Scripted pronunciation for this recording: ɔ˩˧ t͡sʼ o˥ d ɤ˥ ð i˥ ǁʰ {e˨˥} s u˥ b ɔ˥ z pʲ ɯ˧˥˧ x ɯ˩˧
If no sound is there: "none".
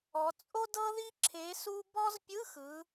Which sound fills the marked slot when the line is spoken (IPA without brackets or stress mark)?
e˨˥